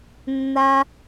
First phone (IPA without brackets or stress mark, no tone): nː